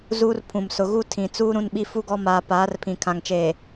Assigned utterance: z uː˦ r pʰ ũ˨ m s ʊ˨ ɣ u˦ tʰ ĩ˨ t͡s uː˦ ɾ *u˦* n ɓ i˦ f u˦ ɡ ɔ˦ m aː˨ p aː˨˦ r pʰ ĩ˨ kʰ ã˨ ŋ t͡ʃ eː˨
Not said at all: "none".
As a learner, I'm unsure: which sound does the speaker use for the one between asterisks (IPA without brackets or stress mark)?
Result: ũ˦